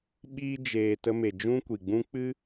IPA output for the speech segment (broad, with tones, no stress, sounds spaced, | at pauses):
ɓ iː˦ d͡ʒ eː˧ t ə˧ m e˨ d͡ʒ ũ˦ kʷ i˨ ɡ͡b ũ˦ k͡p ɨ˦